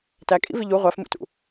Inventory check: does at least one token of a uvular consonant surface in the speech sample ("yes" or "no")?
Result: yes